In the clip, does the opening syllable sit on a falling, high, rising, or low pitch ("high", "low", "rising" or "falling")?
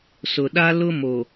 low